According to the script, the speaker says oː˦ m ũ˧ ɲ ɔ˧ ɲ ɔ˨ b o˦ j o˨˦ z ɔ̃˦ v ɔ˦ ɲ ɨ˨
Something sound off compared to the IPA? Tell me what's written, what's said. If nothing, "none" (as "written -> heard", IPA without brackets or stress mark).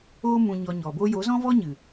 none